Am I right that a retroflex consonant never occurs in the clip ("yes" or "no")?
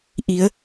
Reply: yes